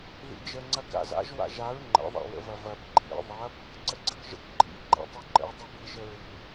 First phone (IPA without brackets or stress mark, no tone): ð